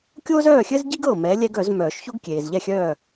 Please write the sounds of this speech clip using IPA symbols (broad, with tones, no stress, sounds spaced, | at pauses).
kʲ oː˥ z œː˥˨ xʲ ɘ˥ z ɟ i˥ ɡ ɤ˧˩ m ɛ˨˥ lʲ ɛ˥ ɡ œ˨˩˦ z m œː˨˩˦ ʃ ç o˥ ɡ kʲ eː˩ z ʎ ɛ˥˨ xʲ œː˥˨